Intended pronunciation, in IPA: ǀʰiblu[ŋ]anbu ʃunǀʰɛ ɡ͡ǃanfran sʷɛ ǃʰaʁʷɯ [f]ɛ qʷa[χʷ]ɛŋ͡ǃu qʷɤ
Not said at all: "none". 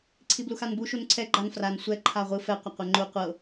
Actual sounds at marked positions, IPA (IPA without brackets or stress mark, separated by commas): x, f, qʷ